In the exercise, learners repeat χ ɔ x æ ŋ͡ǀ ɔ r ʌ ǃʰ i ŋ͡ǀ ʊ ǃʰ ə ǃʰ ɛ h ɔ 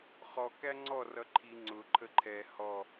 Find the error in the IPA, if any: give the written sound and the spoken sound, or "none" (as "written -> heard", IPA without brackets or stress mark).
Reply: x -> k